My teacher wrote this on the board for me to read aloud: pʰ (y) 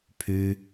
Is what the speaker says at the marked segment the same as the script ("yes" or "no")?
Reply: yes